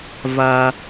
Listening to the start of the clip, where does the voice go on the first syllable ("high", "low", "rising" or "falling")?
low